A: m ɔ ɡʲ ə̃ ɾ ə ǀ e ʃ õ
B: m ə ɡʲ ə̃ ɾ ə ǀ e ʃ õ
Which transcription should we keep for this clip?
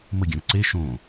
B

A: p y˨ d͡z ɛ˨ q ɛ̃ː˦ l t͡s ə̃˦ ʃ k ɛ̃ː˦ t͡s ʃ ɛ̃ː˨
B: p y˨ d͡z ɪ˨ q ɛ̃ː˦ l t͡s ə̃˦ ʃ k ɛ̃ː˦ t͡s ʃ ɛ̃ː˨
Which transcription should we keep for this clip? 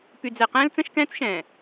A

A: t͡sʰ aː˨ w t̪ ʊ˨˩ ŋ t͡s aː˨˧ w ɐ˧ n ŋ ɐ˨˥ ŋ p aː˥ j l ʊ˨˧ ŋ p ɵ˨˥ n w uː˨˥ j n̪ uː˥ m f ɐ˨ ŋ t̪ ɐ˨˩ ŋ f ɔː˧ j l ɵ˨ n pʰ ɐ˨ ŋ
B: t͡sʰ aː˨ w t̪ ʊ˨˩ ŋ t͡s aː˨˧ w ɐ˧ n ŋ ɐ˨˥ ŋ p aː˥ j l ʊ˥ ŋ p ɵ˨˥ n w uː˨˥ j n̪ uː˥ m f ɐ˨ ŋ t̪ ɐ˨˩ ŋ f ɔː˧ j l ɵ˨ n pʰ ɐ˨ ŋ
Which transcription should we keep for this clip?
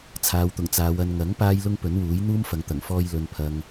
B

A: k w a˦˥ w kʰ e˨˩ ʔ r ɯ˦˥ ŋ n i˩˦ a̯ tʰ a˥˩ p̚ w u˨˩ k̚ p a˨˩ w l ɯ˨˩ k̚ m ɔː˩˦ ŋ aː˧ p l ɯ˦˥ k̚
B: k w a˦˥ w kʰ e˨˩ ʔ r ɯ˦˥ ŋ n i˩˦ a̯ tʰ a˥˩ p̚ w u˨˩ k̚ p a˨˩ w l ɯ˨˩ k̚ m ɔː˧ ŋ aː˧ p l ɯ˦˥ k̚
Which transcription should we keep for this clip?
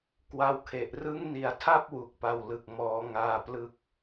A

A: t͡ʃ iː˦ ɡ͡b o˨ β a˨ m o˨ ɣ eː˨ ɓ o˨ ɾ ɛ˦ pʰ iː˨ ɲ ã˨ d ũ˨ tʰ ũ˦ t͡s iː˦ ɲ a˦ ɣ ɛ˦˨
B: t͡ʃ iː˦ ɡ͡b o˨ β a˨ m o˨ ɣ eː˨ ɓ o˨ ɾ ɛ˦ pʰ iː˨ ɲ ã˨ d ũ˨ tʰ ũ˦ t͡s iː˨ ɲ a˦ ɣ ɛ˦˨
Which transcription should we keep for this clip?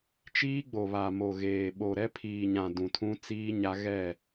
A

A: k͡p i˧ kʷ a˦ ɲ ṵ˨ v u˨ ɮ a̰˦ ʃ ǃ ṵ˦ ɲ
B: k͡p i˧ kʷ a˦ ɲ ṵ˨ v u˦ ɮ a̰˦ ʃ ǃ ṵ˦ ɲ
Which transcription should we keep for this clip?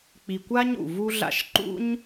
B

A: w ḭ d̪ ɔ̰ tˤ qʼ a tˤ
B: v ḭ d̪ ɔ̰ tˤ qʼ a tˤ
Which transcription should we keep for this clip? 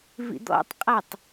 B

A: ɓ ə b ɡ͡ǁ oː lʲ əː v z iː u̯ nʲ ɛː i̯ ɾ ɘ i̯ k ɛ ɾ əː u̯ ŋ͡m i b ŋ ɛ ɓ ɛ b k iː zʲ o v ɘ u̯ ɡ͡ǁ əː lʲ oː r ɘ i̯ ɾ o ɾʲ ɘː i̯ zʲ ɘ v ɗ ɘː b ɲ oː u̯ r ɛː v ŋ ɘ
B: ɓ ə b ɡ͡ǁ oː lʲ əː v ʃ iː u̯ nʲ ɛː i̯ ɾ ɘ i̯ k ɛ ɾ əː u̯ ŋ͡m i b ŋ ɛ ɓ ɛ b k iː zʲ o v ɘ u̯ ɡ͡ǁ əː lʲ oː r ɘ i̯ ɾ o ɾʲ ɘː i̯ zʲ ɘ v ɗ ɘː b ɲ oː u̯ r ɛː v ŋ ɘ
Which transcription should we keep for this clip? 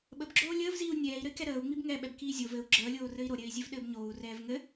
A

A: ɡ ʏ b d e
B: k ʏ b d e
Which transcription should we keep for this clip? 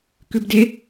B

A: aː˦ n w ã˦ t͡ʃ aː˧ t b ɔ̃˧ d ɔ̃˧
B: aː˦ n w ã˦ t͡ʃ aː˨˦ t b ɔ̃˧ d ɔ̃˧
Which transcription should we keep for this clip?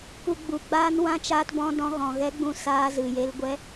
A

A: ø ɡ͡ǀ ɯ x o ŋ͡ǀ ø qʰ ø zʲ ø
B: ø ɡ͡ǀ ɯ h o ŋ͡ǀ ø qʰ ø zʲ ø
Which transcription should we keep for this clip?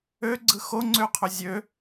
A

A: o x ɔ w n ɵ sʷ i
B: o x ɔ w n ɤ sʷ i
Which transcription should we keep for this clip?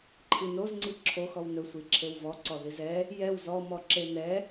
A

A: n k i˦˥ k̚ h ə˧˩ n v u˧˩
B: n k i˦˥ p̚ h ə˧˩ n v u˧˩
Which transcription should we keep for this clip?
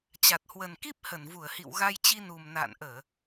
B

